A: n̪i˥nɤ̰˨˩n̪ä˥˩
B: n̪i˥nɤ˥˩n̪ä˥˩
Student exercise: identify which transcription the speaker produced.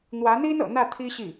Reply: A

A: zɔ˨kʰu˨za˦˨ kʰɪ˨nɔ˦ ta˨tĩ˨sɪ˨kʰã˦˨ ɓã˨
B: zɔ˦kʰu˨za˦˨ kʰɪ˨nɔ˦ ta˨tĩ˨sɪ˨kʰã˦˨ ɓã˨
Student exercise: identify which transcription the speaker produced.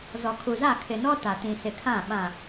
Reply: A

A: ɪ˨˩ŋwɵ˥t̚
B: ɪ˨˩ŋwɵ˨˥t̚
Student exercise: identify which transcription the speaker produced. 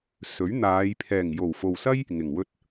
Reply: A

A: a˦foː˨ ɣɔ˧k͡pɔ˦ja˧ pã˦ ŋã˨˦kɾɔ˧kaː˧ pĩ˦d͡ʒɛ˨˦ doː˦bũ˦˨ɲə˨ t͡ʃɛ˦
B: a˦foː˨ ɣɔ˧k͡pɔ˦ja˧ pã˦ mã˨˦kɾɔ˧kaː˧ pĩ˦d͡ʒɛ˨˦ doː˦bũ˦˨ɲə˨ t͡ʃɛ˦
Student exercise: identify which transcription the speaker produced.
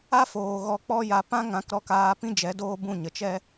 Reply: A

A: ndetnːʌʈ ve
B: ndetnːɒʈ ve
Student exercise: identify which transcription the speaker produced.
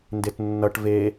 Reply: A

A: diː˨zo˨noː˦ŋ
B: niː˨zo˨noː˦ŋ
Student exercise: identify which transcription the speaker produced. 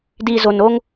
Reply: A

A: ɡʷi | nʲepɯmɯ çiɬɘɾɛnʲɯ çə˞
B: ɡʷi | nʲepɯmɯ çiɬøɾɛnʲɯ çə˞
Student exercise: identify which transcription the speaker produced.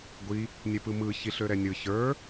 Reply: B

